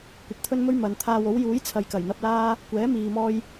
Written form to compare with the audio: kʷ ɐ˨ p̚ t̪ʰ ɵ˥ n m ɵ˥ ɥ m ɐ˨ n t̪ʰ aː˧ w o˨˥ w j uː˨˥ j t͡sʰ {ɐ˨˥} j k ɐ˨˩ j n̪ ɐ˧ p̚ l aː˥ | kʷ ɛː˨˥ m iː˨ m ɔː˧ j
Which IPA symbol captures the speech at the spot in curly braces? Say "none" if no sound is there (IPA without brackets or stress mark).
ɐ˨